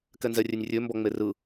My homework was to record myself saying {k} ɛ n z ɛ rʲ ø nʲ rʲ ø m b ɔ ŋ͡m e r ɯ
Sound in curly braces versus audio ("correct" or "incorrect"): correct